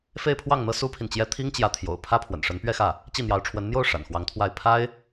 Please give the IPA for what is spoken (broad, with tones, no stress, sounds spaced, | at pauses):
f e˥˧ ɪ̯ pʰ w ɑ˥˩ ŋ n̪ ɤ˥ s u˥ pʰ i˨ n t͡ɕ j ɛ˥ t̪ʰ i˥ ŋ t͡ɕ j ä˧˥ t̪ʰ j o̰˨˩ ʊ̯ pʰ ä˥ pʰ w ə̰˨˩ n ʂ ə˧˥ n p ɥ ɛ˥˧ x ä˥˩ | t͡ɕ i˥˩ n̪ j ɑ˧˥ ʊ̯ ʈ͡ʂʰ w ə˧˥ n n̪ j o˥˩ ʊ̯ ʂ a̰˨˩ n x w ɑ˧˥ ŋ t̪ʰ w a˥˩ ɪ̯ pʰ a˥ ɪ̯